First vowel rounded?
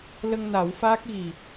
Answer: no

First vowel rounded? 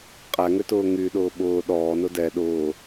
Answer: no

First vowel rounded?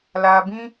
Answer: no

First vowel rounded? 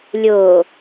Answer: yes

